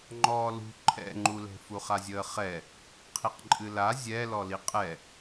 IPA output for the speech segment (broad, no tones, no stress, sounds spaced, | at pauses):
ŋ͡ǃ ɔː l ṳ ǃʰ ɛ̰ ŋ͡ǃ u l ɛ̤ f u χ a zʲ əː χ ɛ | qʰ i q ǃʼ ɨ l a zʲ ɛ l ɔ l i qʼ ɛ